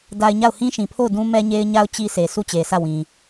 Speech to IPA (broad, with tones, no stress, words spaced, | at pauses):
da˨ɪ̯ ɲa˦˨ʊ̯hĩ˦ʃĩ˨pʰo˦˨ʊ̯ dũ˦ mɛ˦ɲe˦ɪ̯ɲa˦ʊ̯ t͡ɕi˦se˨ su˦˨t͡ɕe˨sʰä˦˨wĩ˨